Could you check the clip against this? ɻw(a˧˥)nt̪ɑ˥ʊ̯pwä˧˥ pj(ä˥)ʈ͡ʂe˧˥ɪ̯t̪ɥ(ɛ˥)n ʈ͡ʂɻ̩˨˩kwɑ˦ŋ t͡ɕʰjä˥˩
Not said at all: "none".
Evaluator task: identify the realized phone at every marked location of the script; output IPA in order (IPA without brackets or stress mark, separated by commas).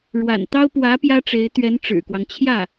a̰˨˩, ä˥, ɛ˧˥